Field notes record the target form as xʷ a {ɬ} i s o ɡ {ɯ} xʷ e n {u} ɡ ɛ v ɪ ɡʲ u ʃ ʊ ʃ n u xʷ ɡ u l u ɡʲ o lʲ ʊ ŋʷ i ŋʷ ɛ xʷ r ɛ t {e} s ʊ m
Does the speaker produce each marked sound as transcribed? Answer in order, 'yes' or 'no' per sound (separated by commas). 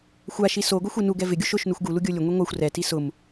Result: no, no, yes, no